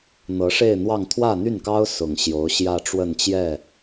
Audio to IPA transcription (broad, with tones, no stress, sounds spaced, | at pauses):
n̪ ɤ˧˥ ʂ e˥˧ ɪ̯ n̪ w ɑ˥˧ ŋ t̪ʰ w ä˥˧ n̪ y˥˩ n k ɑ˥ ʊ̯ s ʊ˨˩ ŋ ɕ j o˧˥ ʊ̯ ɕ j ä˥˧ ʈ͡ʂ w ə˥˧ n t͡ɕ j ɛ˥˩